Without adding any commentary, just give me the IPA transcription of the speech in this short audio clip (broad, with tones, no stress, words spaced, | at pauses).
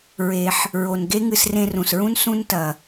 ɹe˩ħ | ɹo˩nɡe˥ ŋɨ˧srẽ˧rũ˩sɹũ˥n sũ˥ntɐ˩